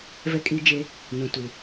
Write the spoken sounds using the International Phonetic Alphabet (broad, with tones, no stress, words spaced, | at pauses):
vɛ˦kʼiː˦d͡ʒe˦ | nũ˨ tu˨